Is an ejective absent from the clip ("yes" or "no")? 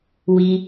yes